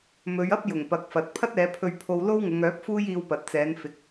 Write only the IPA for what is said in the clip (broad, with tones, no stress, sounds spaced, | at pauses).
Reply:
m ɵ˨˧ ɥ ɐ˥ p̚ j ʊ˨˩ ŋ p ɐ˨ k̚ f ɐ˨ t̚ pʰ ɐ˥ t̚ ɛː˨˧ pʰ ɵ˧ ɥ pʰ o˧ w l o˥ w ŋ ʊ˨˧ ŋ œː˨˥ p̚ f uː˥ j iː˧ w p ɐ˨ t̚ t͡s ɛː˨˧ n f ɪ˨˥ k̚